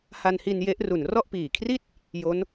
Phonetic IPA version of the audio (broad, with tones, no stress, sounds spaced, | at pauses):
h a˧ n h i˧ n j e˦˥ ʔ r u˨˩ n r ɔ˥˩ ʔ p iː˨˩ kʰ r i˥˩ t̚ | j o˦˥ n